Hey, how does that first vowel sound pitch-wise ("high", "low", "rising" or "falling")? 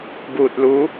low